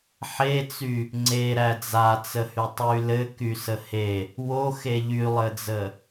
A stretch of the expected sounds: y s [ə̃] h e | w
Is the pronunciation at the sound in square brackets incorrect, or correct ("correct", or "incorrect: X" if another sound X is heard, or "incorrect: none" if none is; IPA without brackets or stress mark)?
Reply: incorrect: ə